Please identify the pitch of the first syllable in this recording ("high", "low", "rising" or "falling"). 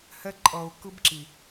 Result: high